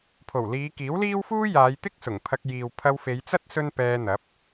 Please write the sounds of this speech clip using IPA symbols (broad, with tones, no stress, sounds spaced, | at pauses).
pʰ o˨˩ w l iː˨˧ k iː˨˥ w l iː˥ w f uː˥ j aː˨˧ j t̪ ɪ˥ k̚ s ʊ˨˩ ŋ pʰ ɐ˧ k̚ j iː˨ w pʰ ɐ˧ w f e˨˧ j t͡s ɐ˥ t̚ s ɵ˥ n p ɛː˧ n̪ ɐ˨˥ p̚